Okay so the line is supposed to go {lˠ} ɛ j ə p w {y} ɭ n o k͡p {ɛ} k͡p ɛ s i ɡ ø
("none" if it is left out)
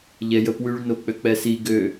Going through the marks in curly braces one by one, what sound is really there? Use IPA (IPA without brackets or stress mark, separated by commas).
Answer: ʎ, y, ø